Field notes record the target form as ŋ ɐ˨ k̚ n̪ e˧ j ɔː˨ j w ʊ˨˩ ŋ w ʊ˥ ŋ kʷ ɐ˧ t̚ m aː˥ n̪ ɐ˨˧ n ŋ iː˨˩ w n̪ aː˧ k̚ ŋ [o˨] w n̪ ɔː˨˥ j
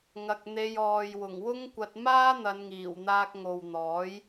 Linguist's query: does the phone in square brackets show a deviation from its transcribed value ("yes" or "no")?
no